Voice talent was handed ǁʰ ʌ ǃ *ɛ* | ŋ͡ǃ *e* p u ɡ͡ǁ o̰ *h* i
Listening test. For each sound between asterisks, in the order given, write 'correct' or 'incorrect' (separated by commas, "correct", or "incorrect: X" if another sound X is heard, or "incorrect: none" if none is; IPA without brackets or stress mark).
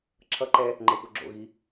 correct, correct, incorrect: ɣ